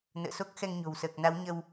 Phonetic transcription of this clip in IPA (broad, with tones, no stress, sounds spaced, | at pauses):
n ə̰ː˧˨ s o˦˥ k̚ x ɛ˧ ŋ ɲ o̤˨˩ w s əː˨˩ k̚ n a˨˦ w ɲ ə˧ w